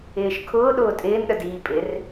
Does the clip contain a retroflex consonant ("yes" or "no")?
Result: no